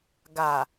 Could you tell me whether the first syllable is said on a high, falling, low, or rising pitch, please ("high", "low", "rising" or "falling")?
low